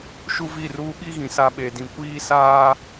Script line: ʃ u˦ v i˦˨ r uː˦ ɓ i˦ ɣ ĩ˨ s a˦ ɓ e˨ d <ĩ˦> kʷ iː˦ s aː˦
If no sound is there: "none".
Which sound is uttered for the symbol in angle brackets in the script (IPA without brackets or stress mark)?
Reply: ĩ˨